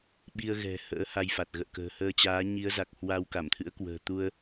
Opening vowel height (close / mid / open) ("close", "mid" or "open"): close